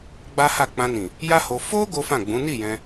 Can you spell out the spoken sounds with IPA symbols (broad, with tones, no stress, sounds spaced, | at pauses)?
ɡ͡b a˦ h a˦˨ k͡p ã˧ n ĩ˨ | j a˦ h o˧ f o˦ ɡ o˦ f ã˦˨ ɡ͡b ũ˨˦ n i˦˨ j ɛ̃˧